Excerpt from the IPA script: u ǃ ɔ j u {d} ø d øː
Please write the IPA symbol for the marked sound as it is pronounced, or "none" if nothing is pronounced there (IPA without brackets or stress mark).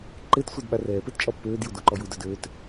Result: d